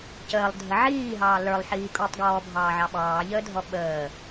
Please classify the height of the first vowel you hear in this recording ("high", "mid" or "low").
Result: mid